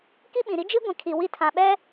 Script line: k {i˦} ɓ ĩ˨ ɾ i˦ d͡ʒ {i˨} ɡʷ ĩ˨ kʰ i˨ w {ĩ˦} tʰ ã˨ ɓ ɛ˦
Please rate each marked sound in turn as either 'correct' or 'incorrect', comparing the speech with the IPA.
correct, incorrect: i˦, incorrect: i˦

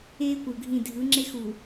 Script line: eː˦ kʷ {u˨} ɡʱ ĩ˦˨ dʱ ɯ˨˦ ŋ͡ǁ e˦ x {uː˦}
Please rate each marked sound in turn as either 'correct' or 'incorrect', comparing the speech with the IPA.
incorrect: ɯ˨, incorrect: uː˨

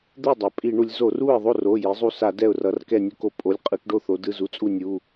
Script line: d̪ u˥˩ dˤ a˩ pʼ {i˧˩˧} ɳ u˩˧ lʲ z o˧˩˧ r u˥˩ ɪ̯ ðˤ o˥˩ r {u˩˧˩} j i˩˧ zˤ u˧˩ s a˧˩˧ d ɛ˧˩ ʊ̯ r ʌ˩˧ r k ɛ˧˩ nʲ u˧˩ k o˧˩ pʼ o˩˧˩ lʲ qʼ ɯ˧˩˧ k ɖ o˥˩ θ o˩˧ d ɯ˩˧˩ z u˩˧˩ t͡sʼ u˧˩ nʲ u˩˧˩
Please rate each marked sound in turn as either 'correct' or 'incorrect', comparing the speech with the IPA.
correct, incorrect: o˩˧˩

